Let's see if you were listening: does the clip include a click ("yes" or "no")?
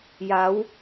no